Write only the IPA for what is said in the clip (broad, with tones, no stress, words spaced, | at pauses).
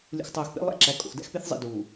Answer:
lʲṵ˨xtˤoː˨x pḛ˦ lˠæ̰˦ǁæ˨ kʼo̰˨xdæ̰˦xpe˦θzˤḭ˨ duː˨